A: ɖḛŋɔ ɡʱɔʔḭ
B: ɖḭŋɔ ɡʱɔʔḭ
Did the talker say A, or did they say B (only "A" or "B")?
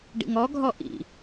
B